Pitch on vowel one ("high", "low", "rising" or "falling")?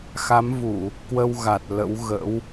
rising